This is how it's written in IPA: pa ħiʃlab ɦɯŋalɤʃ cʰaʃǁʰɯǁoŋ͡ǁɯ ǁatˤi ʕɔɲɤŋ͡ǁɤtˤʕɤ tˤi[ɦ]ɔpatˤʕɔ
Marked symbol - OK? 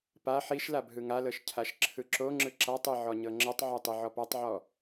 no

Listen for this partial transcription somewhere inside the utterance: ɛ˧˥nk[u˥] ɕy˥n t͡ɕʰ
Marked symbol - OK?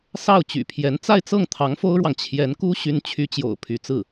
yes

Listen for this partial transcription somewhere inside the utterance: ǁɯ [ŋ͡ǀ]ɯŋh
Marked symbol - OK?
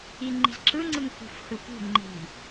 yes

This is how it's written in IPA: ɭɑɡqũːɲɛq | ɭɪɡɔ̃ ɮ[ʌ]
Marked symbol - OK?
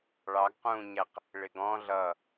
yes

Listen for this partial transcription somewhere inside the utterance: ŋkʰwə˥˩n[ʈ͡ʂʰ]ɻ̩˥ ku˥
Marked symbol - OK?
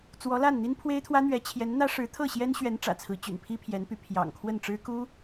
no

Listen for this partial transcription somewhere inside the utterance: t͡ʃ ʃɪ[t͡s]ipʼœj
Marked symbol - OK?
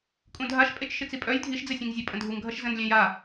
yes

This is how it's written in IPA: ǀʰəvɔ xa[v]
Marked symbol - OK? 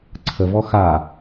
no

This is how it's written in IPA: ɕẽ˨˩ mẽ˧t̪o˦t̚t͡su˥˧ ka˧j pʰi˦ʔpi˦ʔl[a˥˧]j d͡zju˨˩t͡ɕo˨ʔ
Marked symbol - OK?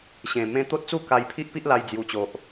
no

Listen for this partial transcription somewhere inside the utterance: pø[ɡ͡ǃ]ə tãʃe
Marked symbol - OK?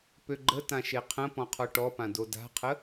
yes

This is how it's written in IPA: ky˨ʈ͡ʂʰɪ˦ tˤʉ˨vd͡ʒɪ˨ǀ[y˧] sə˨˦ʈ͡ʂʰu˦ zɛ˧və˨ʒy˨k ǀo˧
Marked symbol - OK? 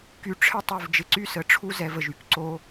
no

